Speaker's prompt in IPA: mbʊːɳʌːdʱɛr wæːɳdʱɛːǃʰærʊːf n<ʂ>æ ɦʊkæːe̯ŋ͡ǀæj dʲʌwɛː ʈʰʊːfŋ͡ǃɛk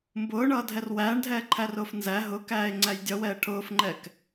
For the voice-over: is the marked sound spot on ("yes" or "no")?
no